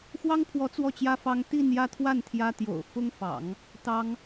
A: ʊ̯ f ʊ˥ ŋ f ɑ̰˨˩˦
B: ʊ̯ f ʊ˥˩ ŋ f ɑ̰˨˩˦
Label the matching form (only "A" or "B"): A